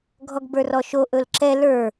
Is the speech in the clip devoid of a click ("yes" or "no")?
no